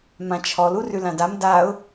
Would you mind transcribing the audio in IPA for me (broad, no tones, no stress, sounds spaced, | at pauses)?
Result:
m ã t͡ʃʰ ɔ l u r ʉ l ã d a m d a ʊ̯